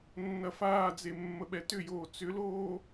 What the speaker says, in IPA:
nː ɐ f aː d͡z e mː ə ɓ ɛ t ʏ j oː t͡s ʏ l oː

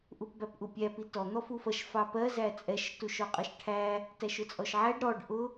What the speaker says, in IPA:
ʔ u p b æ p ʔ u pʲ æ p i t ɔ n̪ ɔ f u f ʌ ʃ f ɑ p ɜ z æ t͡sʼ ɛ ʃ t u ʃ ɔ qʼ ʌ ʃ ʈʰ æ | t æ ʃ ʊ t͡sʼ ɔ ʃ ʕ æ ɖ ɾ ɔ ɖ ʔ ʊ

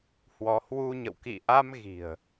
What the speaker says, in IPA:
h w ɔ˨˦ h w u˧ ɲ ə̰˧˨ w k ḭ˧˨ ʔ a˧ m ɣ i̤˨˩ ə̯

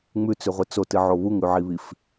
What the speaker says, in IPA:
ŋ͡m ʉ t͡s ʉ ʁʷ ɨ t͡s o t ɨ ʕ o β u ŋ ʉ ʕ i β i f

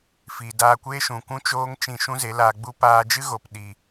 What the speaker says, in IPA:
f iː˨ d aː˧ kʷ eː˦ ʃ ũ˨ kʷ ũ˦ t͡ʃ oː˦ ŋ t͡ʃ ĩ˧ ʃ ũ˦ z e˨˦ l aː˧ ɡ͡b u˦ p aː˧ d͡ʒ ɨ˦ ɣ o˨ p ɗ i˨

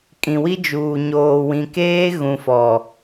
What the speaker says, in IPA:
kʼ ĩ˨ w i˦ d͡ʒ uː˨ ɲ oː˨ w ĩ˨ k eː˦ ɣ ũ˨ f ɔ˨

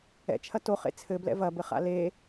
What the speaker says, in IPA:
ɛ̰ t͡ʃʰ ɐ t o χ ḛ t͡sʰ ɘ b l ɛ̰ v ɐ b ɘ χ a̰ l e

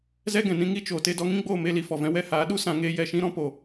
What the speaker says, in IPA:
z ɛ˦ ɡ ɛ̃˨ n ĩ˧ ŋ i˦ t͡ʃ oː˨ t e˧ d ɔ˧ ŋ ĩ˦ ɡ͡b oː˦˨ m e˦ l i˧ f ɔ˨ v ɛ̃˦ w ɛ˧ h aː˨˦ ɗ u˦ s ã˧ ŋ eː˦ j ɛ˨ ʃ ĩ˦ ɾ ɔ̃˦ p o˨

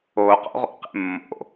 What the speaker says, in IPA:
o q o̰ ʁ o̰ q ḛ mː o̰

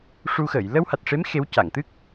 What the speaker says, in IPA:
ʂ u˧ x əː˨˩˨ j l ə˧ w h a˨˩ t̚ ʂ e˧˥ m x e˧˥ w c a˨˩˨ ŋ t̪ ɨ˦˥ k̚

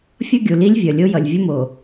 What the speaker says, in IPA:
fʲ ʌ˦ ɡʲ u˨ l i˦ lʲ vʲ ʌ˨ lʲ o˦ j ʌ˨ lʲ vʲ ʌ˦ m o˨

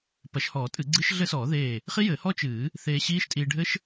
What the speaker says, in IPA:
p ɐ˨˩˦ ʃ h ɔː˨˩˦ tʼ ɨ˨˩˦ ɡ͡ǀ ɨ˦˥ ʃ ɮ ɘ˦˥ s ɔː˨˩˦ ð eː˧˩ | χ i˦˥ j ɘː˨˩˦ h ɔ˦˥ t͡ʃ ɨː˨˩˦ | θ eː˧ ɕ iː˦˥ ʃ tʼ iː˧ ɖʱ ɘ˦˥ ʃ

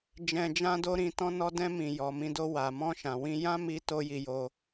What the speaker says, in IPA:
d͡ʒ ɛ̃˧ d͡ʒ ã˦ d o˦ ɾ ĩ˧ t ɔ̃˦ n ɔ˦ d ɛ̃˧ m ĩ˨ j ɔ˨ m ĩ˧ d o˧ w a˨ m ɔ̃˧ ʃ ã˨ w ĩ˧ j ã˦ m i˧ t o˦ j i˧ j o˧

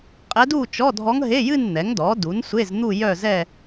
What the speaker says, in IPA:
qʼ ɛ˧˥ d u˥˧ t͡ʃ ɔ˧˥˧ dʱ ɔ˧˥ ŋ ɦ e˧˥˧ j ɨ˥˧ n n̪ ɛ˩˥ ŋ d ɔ˩˥ d u˩˥ n sʷ e˧˥˧ z n̪ u˥˧ j œ˥˧ z ɛ˥˧

